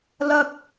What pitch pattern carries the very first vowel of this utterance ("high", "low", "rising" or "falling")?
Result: high